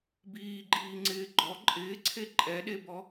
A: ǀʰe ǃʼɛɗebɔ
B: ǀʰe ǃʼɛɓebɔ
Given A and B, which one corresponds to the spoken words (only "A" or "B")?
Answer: A